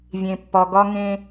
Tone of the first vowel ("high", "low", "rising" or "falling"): low